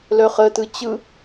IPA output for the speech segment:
lœχətɯ t͡ɕɯ

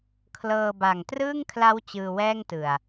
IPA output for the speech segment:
kʰlɤː˧ ba˨˩ŋ trɯː˥˩ŋkʰla˦˥w t͡ɕɯː˧wɛː˥˩ŋtɯ˨˩a̯

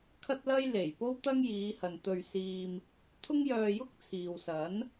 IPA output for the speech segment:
kʰɐ˥t̚lɐ˥jle˨˩jpo˥w t̪ɐ˥ŋjiː˨˧hɐ˨nt̪ɵ˧ɥ siː˧m | t̪ʰʊ˥ŋjœː˧jʊ˥k̚t͡sʰiː˨w sɐ˨˥n

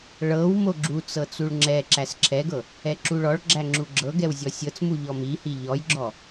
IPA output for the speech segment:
ɭɤw moɡ͡ǁut͡sɤ t͡suɭŋ͡ǁɛǁæs ǁʰɛɡɤ | ɛǁuɭɔɭɡ͡ǁæ ŋ͡ǁuɡ͡ǁɤɡɛw zʲɔsʲɤt͡smu ʎɔmihi ʎɔjɡ͡ǁɔ

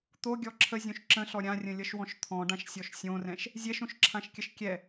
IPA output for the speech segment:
t̪oɡʲɔ ǁʰəzʲõʃ ǁə̃ɬɔ ɾʲãrʲə̃lʲʌʃwɔ̃ʃ t̪ʰɔ̃ɖãʃsʲɔʃ sʲõrɛ̃ʃ | zʲɛʃõʃǁʰãʃkʲəʃ kʲɛ

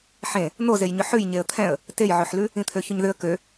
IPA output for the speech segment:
ħẽ | n̪ozejɲʏ ħʉj ɲeə̯t̪ʰɛ̃ə̯ | tejʕøħlʉ | ĩt̪ʰøçʏɲðʏə̯ kø

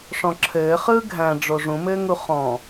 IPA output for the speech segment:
ʂɔ̃ǁʰɘːχɯː ɡʱæ̃ ɖ͡ʐoʐũmɘːŋu χɔ̃

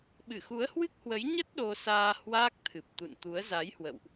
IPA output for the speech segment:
ɓɨ˧˩xu˨˦ə̯hwɨ˦˥k̚hwə˨˦j ɲə˦˥t̚ ɗo˧saː˧ hwaː˦˥k̚t̪ʰɨ˨˩p̚t̪ṵ˧˨nt̪u˨˦ə̯ za˨˦jhwə̰˧˨wʔ

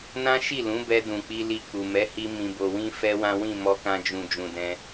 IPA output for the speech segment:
nã˦ʃi˦˨lũ˨˦bɛ˧ dũ˨k͡pi˧li˧ k͡pu˨ mɛ˨˦hi˧ mĩ˨bo˨wĩ˧ fɛ˦ wã˦wĩ˦˨ mɔ˧kã˧d͡ʒũ˨ d͡ʒũ˨dɛ̃˧

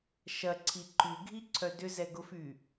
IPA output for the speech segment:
ʃɐǀʰi ǃyɡʱiǀʰœ dʏzɛɡʊfy

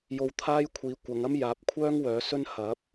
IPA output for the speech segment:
jo˧wt̪ʰaː˥jkʷʰiː˨˧ kʷɐ˨˧ŋɐ˥m jaː˨˥p̚kʷʰœː˥ŋ wœː˨˥sɵ˥n hɐ˨˥p̚

